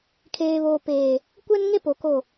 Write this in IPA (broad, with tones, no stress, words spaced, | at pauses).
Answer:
kʰeː˨βoː˨ peː˨ | kʷɛ˦nŋe˦ po˨ko˦˨